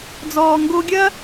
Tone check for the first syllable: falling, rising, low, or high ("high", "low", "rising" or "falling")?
low